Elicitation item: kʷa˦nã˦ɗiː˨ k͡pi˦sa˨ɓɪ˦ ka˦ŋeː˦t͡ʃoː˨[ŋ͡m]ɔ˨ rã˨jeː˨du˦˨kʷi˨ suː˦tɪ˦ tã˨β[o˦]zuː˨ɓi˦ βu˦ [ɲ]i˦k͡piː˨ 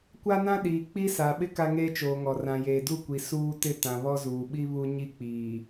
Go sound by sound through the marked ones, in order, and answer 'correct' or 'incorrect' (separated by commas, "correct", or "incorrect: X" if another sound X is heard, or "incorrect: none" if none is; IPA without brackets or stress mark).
incorrect: ŋ, incorrect: ɔ˦, correct